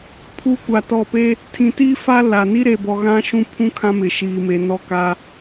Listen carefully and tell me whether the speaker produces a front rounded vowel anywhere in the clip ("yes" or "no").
no